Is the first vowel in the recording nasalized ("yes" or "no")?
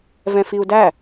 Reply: yes